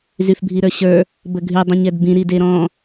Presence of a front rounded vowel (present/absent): present